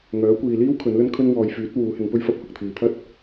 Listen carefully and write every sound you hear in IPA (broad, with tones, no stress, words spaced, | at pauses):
ŋœː˨˥kʷiː˨liː˥w kʰɵ˨˥nlɵ˥nkʰɵ˥n wɔː˧j fyː˨˥t̚ wuː˨˥hɪ˨˥ŋpɵ˥ɥfɐ˥p̚ hʊ˨k̚t̪ʰiː˨t̪ʰɐ˥t̚